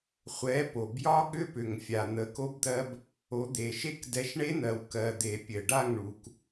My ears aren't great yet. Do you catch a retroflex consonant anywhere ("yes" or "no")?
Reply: yes